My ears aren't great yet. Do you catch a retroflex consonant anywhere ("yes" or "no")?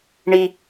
yes